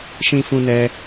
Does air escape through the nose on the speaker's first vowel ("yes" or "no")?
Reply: yes